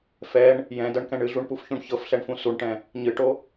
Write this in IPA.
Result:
f ɛ ɳ | j ɛ̃ d ɤ ɳ k ɛ̃ ɳ ɨ ɮ u ɳ p u f ç ũ ɳ ç ɤ f ɬ ɛ ɳ f ũ s u ɳ ʈ ɛ̃ | ɲ ɨ ʈ o

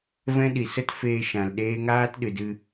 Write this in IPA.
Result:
v ɛ̃˦ ɗ i˨ s ə˦ t f eː˧ ʃ ã˨ l ɗ eː˦ ŋ aː˦ t ɗ ɨ˨ d ɨ˧

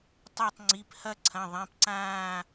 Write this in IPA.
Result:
tˤ a˦˨ tˤ ŋ͡ǀ i˩˧˩ p h ɐ˦˨ ǀʰ ɐ̃˩˧˩ ðˤ ẽ˩˧˩ p ǀ ãː˦˨

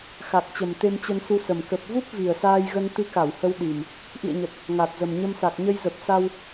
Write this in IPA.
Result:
x a˨˩ k̚ t͡ɕ ə˨˩ m t̪ e˧ m t͡ɕ ə˧ n s u˧ s ə˨˩ m k ə˨˩ p̚ v u˦˥ p̚ v i˨˩ ə̯ s aː˧ j ɣ ə˧ n t̪ ɨ˧ k a˧˩ w h ə˧ w ɗ i˨˩ m | ʔ ḭ˧˨ ə̯ ɲ ə˨˩ t̚ | ŋ a˨˩ t̚ z ə˨˩ m ɲ ə˧ m s a˨˩ k̚ ɲ ə˧ j z ə˨˩ p̚ s a˧ w

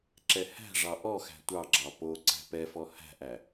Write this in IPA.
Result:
ǁ ɛ h æ̤ ʐ ɑ ʔ ɔ x æ̤ tʷ ɑ ɡ͡ǁ ɑ p o ǀ æ̤ p ɛ f ɔ h æ̤ ʔ æ

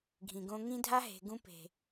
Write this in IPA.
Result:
ɡʱ ĩ˨ ɡ õ˧ ŋ ĩ˦ dʱ a˦ ɦ e̤˨ ɡ ũ˧ p e̤˨

